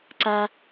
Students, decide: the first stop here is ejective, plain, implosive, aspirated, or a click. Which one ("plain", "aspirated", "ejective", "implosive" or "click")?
click